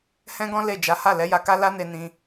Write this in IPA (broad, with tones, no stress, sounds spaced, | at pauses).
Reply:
h ɛ̃˦ ɡ ɔ̃˦ l e˦˨ d͡ʒ a˨˦ h a˦˨ l ɛ˨˦ j a˧ k a˦ l a˦ n e˧ n ĩ˧